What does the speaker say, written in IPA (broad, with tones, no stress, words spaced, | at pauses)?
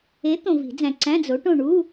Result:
e˨˥ t̪õ˨vi̤˨˩˦d͡zæ̃˨ ǀæ̃˧˥˧d͡zo˨˥ʈõ˦˨ ɳu˧˥˧